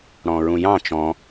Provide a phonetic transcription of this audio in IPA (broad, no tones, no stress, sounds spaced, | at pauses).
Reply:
ɽ ɔ̃ ɹ ũ j ɑ̃ t͡ʃ ɔ̃